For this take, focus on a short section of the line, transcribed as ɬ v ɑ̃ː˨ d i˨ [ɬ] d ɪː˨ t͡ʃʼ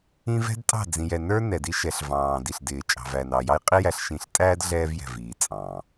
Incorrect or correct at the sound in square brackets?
correct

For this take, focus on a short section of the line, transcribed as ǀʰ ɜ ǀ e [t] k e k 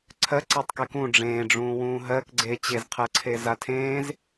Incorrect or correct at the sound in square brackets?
incorrect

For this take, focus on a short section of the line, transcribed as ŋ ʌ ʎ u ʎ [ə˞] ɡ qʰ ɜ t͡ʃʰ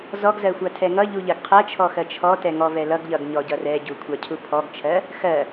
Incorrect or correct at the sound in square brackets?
incorrect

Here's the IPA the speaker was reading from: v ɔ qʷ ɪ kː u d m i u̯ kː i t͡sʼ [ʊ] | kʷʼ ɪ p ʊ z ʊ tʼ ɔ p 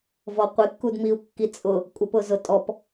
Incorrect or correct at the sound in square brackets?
correct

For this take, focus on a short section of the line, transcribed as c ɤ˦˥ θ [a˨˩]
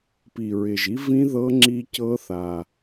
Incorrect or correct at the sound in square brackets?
correct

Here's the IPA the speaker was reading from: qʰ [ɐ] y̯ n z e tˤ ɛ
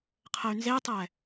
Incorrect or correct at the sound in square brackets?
incorrect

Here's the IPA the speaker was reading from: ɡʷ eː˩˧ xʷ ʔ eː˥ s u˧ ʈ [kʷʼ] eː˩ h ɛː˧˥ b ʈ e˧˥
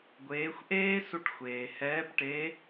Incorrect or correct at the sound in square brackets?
incorrect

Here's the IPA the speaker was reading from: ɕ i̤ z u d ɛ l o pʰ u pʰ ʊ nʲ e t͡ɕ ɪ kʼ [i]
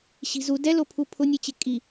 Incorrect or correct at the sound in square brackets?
correct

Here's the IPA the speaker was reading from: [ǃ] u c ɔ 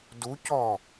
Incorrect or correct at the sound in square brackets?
incorrect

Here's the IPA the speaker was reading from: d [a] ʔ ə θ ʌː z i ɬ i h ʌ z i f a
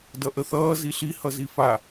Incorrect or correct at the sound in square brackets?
incorrect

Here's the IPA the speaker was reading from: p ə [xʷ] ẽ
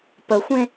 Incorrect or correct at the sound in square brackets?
correct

